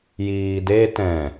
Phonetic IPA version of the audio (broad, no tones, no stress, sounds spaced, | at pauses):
j iː d e t ɛ̃